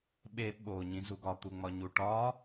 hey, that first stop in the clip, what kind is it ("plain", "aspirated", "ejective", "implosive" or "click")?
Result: implosive